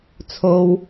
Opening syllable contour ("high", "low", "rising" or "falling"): high